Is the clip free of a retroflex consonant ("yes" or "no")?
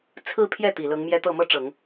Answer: no